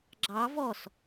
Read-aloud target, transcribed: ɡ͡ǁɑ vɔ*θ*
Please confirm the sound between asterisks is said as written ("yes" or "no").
no